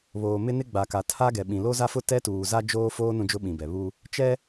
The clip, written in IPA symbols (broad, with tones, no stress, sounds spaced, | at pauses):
β oː˨ m ɪ˦ n ɪ˦ ɡ͡b a˨ k a˨ tʰ a˦ ɡ ɛ˨ ɓ ĩ˨ l o˦ z a˦ f ʊ˦ t ɛ˦ t uː˨ z a˦ d͡ʒ oː˦ f oː˦ n ũ˦ d͡ʒ ʊ˦ ɓ ĩ˨ b ɛ˨ β u˦ | t͡ʃ ɛ˦